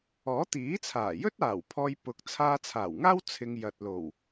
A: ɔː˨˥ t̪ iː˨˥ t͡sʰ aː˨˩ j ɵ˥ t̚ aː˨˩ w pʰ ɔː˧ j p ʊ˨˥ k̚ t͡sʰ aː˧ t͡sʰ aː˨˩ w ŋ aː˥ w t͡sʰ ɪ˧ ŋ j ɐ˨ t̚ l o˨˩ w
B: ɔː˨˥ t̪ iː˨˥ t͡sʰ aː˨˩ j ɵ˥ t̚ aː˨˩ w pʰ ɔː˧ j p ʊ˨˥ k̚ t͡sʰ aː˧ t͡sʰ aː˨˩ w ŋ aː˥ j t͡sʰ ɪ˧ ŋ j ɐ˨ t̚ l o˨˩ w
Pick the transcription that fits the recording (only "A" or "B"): A